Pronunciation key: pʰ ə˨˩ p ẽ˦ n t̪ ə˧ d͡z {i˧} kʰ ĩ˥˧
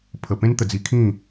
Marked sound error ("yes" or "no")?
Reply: no